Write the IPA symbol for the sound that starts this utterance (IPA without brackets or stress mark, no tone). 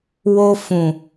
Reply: w